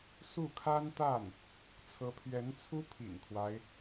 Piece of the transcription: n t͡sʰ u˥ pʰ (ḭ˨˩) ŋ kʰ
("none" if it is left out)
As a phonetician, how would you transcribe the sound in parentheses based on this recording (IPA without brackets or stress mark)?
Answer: ḭ˨˩